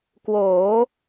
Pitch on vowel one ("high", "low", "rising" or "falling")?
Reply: rising